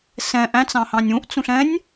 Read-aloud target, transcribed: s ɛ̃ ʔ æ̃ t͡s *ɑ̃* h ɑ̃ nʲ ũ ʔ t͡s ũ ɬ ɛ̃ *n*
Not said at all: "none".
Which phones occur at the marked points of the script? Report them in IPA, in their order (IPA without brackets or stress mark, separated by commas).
ɑ̃, nʲ